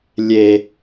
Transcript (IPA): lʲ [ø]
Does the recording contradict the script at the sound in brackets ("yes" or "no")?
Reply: yes